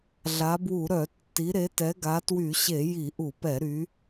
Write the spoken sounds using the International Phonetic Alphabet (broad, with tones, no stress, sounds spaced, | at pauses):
ɮ a˨˦ b w u˧˩˧ ɾ œ˧˩˧ tː i˨˦ ɾ e˨˦ t ɛ˨˦ ɡ a˨˦ t w y˧˩˧ ɕ e˧˩˧ j i˧˩˧ ʔ u˧˩˧ p ɛ˧˩˧ ɾ y˨˦